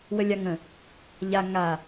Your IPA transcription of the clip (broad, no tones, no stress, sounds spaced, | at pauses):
w ə lʲ a ŋ ə̃ | ʎ a ŋ a